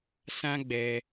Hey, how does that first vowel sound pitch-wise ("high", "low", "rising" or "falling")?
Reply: high